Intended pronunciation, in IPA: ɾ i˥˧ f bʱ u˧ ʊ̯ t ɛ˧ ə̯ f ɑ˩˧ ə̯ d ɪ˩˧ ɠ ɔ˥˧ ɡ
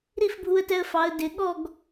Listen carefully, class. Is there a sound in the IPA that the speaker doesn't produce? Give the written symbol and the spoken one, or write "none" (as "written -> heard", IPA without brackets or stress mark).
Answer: ʊ̯ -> ə̯